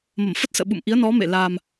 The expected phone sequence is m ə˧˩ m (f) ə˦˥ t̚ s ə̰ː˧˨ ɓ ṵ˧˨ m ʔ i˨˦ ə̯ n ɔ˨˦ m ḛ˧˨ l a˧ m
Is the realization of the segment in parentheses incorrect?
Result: no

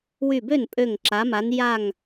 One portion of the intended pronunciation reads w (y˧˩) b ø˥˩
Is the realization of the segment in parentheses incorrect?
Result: no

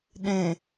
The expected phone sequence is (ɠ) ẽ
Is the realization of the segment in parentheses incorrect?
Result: yes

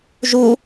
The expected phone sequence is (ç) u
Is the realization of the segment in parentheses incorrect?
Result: yes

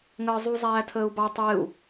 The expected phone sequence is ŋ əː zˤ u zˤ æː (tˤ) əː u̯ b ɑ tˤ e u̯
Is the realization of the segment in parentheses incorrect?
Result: yes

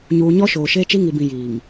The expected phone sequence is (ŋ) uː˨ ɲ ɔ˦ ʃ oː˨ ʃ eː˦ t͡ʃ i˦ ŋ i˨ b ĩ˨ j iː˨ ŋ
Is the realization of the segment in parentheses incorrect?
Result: yes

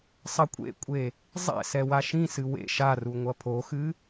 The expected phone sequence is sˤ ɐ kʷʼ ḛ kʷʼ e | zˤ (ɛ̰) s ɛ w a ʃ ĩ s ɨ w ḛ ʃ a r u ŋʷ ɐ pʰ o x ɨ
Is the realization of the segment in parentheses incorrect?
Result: no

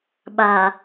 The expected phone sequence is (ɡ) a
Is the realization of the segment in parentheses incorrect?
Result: yes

